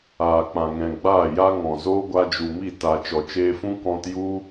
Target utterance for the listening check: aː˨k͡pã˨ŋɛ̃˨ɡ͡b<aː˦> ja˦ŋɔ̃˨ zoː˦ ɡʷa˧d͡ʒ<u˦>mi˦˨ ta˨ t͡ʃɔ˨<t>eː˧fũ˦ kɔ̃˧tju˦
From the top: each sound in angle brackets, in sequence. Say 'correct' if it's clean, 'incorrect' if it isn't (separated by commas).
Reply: incorrect, incorrect, incorrect